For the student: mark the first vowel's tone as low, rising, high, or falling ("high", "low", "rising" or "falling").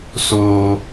low